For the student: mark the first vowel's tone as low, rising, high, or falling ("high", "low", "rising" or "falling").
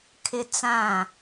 high